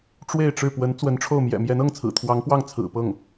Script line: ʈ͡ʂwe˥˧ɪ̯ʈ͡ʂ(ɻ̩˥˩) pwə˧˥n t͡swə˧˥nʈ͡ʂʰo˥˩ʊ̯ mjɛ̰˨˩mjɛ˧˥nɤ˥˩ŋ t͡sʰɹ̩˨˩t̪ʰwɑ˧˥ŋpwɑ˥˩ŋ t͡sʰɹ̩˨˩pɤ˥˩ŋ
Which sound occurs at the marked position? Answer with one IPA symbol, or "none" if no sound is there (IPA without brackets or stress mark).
ɻ̩˥˩